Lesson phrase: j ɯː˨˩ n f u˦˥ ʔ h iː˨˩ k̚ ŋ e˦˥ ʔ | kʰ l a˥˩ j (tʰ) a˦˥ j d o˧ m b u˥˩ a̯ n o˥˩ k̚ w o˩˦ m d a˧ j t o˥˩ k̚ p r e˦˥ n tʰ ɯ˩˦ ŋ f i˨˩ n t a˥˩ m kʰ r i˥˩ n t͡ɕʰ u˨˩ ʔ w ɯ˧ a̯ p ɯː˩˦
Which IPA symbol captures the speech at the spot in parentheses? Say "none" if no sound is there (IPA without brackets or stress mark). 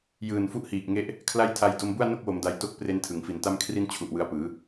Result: tʰ